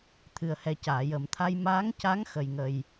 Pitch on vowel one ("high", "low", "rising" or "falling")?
low